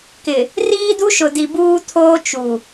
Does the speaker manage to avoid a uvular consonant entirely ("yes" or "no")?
yes